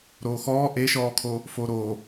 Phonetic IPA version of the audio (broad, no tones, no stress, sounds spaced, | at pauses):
ɾ oː x ɔː ʔ e ʃ ɔː kʰ o | f oː ɾ oː